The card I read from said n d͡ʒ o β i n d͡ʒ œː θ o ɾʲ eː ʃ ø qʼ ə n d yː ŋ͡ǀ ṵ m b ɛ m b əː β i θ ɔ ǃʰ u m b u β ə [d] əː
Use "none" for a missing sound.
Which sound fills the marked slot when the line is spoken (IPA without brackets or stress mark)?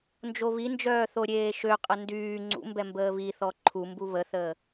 θ